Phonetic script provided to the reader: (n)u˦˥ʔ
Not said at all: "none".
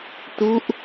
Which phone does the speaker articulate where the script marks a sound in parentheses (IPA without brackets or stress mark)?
t